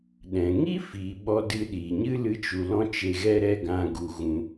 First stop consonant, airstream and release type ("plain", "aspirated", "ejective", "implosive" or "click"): implosive